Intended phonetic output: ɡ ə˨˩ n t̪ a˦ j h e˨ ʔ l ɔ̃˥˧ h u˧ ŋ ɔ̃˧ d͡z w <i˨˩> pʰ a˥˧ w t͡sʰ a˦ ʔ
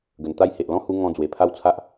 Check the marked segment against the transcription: incorrect: e˨˩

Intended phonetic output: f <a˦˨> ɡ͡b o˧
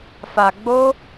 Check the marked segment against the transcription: incorrect: a˨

